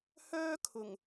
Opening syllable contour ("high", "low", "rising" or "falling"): high